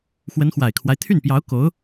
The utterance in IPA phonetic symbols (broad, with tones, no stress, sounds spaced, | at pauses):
x w ə˧˥ n x w a˨˩ ɪ̯ kʰ w a˦ ɪ̯ t̪ʰ y˥˩ n p j ɑ˧˥ ʊ̯ k o˧˥ ʊ̯